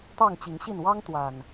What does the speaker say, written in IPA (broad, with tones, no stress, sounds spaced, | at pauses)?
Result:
t̪ ɑ˥˨ ŋ t͡ɕ i˨˦ ŋ ɕ i˥˨ n w ɑ˦ ŋ t̪ w a˨˩ n